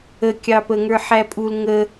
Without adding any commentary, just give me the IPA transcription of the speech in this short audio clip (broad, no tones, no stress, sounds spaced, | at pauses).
ə kʲ ɑ p ə ŋ ə˞ ħ æ pʼ u l ŋ ə